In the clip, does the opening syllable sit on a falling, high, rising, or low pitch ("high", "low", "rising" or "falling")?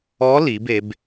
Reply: rising